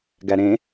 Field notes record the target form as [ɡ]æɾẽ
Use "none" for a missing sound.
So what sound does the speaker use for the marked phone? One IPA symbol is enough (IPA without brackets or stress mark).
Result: ɡ